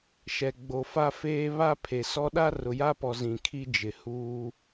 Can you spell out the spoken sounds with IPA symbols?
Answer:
ʃ ɛ˨ ɡ͡b o˨ f a˦ f eː˦ β a˦ pʰ e˨ s ɔ˦ ɗ a˦ r ʊ˨ j a˦ p ɔ˨ z ĩ˨ kʰ i˦ d͡ʒ ɪ˨ h uː˦

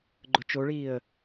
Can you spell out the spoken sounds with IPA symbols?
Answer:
ɡ͡ǃ ʊ t͡ʃ o ɭ iː ə̯

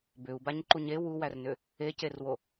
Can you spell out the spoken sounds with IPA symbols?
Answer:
b ʏ u̯ b a ɲ ǃ u ɲ e w u w æ r n ʏ | e c e r w o

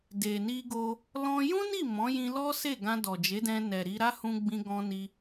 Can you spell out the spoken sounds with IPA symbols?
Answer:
d e˨ n i˧ ɡ o˧ | l ɔ̃˦ j ũ˦ n i˦˨ m ɔ̃˨˦ j ĩ˧ l ɔ˦ s e˦˨ ɡ ã˧ d ɔ˨ d͡ʒ e˨˦ d ɛ̃˧ n ɛ˨ ɾ i˧ ɾ a˦ h ũ˧ ɡ͡b ĩ˧ ɡ ɔ̃˧ n i˧

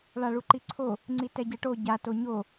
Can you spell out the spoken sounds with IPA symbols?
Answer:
ɭ a ɭ u ǃ i ǀʰ o | ŋ͡ǀ i t ɛ ɟ ɛ ʈ o ɟ a t o ɲ o

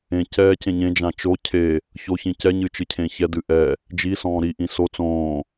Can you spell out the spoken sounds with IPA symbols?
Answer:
ẽ c ɛː c ẽ ɲ ẽ d͡ʒ ã t͡ʃ o cʰ e | ç o ç ĩ c ɛ ɲ ɨ t͡ʃ ɨ cʰ ẽ ç ɛ d ɨ ʔ ɛ | d͡ʒ i s ɔ̃ː ɾ i ʔ ĩ s o t͡s õː

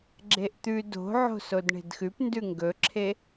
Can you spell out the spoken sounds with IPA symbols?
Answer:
ɡ͡ǁ e ʔ t̪ ʉ d o̤ ʕ o̤ s o d ɳ e̤ d x ʉ p n d ʉ ŋ ɡ ɵ ǁʰ e

